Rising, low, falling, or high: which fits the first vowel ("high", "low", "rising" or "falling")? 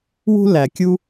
high